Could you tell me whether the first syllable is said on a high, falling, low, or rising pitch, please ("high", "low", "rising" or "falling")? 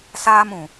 high